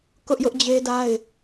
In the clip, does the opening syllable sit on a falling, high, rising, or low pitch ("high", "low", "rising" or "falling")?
high